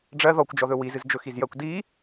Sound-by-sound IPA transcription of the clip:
ɖ͡ʐɜ ðɔkʷd͡ʒɔðɵ wizɨz d͡ʒɵxizjɜkʷ di

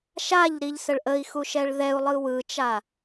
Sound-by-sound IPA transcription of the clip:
ʃaʎɾiʎsəɭ ʔəi̯xuʃɛɭ ðɛu̯lˠɯ wɯt͡ʃa

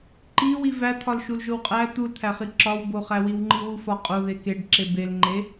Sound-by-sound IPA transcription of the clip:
ǃi wivæ t̪ʰɒlʃulʒowqʼæ t̪ult̪ʰæχi ǁɒwboχæ wiwŋ͡ǃiwufɒ qʼoðe keɖ ǁebelŋ͡ǃe

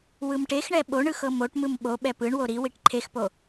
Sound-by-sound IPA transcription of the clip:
wɯmʈexɳɛ ɓo ɳɯxɤmoʈmɯm ɓoɓɛ pɯɳwo ɾiwiʈ ǃʰexpo

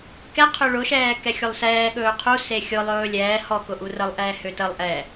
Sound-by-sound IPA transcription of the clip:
kɛqʰø ɭʊʃɛː kɛxʲʊlˠsɛː ɠɵːqʰu sexʲʊ lˠɵːlʲɛː hɔkʊʔu rəlˠʔɛː høtəlˠ ʔɛ

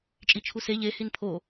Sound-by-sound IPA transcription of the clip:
t͡ʃʼit͡ʃʰuse ʎe hinpʰo

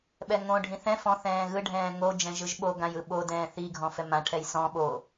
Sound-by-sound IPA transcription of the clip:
ɓɛŋõɖʱĩ θɛ̃ fɔ̃ θɛ̃ːɣɯɖʱɛ̃ː ŋo d͡ʒɛ̃ʒɯʒɓoɡãj ɯɓodɛ̃ː θiɡʱɔ̃ fɛmãʈʰɛj sɔ̃ ɓo

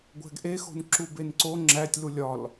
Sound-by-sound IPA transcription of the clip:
ɡʷæ̤ɡʔexo̤n ǁubenǀo ŋ͡ǁætʲlu lʲɒl

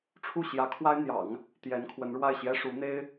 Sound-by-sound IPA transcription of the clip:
ʈ͡ʂʰu˥˩ɕjä˧˥kʰwa˥ɪ̯n̪jɑ̰˨˩˦ŋ | t̪jɛ˧˥nkʰwə˧˥nɻwa˥˩ɪ̯ ɕjɛ˥ ʂu˧˥n̪e˥ɪ̯

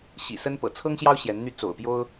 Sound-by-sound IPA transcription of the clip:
ɕḭ˨˩sə˥n pɤ̰˨˩t͡sʰɤ˥ŋɕjɑ˥ʊ̯ ɕjɛ˧˥nn̪y˥ t͡so̰˨˩ʊ̯pjo˥ʊ̯

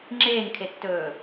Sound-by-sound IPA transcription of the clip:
ŋ͡ǁeːŋkʰetːɵː

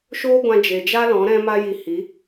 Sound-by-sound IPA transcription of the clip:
ʃoː˦ɡʷã˧ d͡ʒe˨d͡ʒa˦ lɔ̃˨˦ɾɛ̃˦ma˦ji˧ hi˨˦

